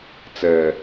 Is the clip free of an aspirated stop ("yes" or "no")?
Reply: yes